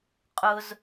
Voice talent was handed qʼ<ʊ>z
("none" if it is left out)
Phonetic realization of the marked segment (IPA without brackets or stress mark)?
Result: ʊ